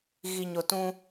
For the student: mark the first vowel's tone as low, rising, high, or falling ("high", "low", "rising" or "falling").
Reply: low